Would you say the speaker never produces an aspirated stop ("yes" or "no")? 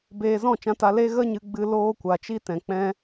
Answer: yes